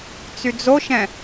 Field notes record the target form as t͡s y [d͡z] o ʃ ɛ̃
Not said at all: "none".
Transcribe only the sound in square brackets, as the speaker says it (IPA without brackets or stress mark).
d͡z